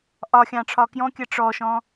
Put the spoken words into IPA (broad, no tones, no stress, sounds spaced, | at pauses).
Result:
ʔ ɒ xʲ ɑ̃ ʈ͡ʂʰ ɒ k j ɔ̃ kʲ ɜ ʈ͡ʂ ɔ ʃ ɔ̃